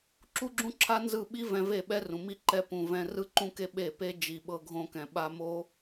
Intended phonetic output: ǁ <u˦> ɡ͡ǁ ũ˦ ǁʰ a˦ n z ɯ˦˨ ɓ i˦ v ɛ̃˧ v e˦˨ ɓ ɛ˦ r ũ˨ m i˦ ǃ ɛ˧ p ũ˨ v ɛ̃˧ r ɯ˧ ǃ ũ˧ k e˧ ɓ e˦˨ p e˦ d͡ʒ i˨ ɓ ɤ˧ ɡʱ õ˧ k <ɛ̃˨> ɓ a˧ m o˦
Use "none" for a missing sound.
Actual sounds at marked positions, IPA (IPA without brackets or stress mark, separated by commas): u˦, ɛ̃˨